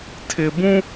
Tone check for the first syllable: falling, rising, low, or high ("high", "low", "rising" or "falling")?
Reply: low